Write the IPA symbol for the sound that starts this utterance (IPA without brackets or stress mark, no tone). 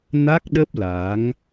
n